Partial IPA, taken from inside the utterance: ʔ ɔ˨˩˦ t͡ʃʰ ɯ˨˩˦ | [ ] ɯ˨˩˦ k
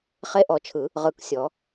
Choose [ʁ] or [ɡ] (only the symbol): ʁ